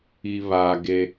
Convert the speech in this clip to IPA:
i˨ β aː˨ ɡ e˦

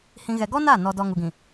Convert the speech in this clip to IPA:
h ĩ˨ ɣ ɛ˨ ɡ ɔ˦ n a˦˨ n ɔ˨ d ɔ˨ ŋ u˨ ɡ ĩ˨

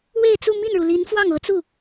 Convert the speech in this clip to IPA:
w e˥˧ ɪ̯ t͡s u˥˧ m i˥˩ n ɻ u˩ l i˧˥ n f w ɑ˥˩ ŋ ɤ˧˥ t͡s u˥˩

